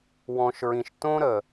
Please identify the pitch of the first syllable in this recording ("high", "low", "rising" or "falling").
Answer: low